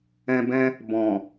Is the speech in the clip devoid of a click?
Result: yes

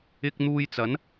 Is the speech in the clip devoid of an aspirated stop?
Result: yes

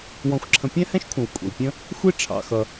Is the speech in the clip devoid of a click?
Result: no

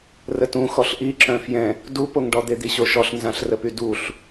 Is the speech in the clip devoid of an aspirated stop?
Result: yes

